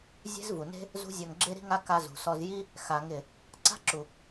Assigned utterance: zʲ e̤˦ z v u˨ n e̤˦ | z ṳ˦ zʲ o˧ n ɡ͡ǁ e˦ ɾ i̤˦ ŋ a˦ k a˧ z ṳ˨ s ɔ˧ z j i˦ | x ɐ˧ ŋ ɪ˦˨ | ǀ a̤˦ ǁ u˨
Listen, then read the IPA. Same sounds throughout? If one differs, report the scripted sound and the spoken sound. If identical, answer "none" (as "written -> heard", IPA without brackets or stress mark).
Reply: ɐ˧ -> a˧